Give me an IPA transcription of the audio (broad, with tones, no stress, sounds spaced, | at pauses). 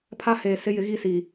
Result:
pʰ a˦ h eː˨ s ɪ˦ j ɪ˨˦ ɣ i˦˨ s i˨